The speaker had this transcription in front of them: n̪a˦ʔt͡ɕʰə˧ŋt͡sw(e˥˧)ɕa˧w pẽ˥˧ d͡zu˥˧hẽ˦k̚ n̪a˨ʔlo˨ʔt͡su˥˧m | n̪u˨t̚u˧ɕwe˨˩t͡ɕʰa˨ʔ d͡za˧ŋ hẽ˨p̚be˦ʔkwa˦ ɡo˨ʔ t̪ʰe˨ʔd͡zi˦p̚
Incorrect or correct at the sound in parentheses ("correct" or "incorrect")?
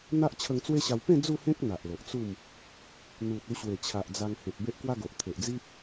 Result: incorrect